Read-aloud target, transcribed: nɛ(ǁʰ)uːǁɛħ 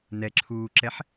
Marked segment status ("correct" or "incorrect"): correct